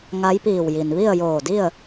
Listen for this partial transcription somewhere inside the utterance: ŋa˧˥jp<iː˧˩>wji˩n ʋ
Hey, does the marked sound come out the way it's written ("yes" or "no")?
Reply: yes